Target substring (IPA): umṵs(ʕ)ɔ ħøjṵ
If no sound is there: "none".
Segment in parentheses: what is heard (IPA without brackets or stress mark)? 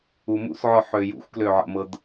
ʕ